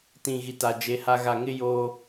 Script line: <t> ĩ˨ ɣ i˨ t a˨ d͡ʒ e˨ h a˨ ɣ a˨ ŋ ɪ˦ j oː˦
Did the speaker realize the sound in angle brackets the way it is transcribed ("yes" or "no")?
yes